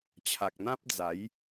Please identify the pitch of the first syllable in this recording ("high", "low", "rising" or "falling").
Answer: low